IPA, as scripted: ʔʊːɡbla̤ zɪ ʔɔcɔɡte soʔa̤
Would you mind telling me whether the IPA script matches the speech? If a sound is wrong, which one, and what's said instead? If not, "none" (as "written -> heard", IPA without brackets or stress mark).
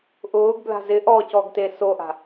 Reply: none